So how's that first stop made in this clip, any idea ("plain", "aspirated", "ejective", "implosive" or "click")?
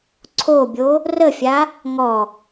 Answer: click